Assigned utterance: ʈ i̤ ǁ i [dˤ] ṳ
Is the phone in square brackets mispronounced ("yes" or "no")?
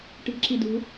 yes